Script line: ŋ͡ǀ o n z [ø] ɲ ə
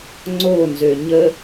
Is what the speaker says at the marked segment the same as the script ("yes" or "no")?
yes